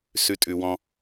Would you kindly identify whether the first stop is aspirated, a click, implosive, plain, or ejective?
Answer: ejective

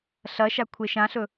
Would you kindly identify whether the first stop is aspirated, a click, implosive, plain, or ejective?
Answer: aspirated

